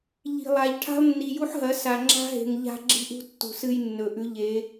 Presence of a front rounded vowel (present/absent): absent